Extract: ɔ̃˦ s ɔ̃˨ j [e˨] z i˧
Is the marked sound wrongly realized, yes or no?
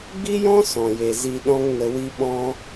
no